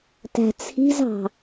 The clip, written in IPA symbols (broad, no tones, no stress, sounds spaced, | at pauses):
t æ̤ t͡sʰ i̤ z ɑ̤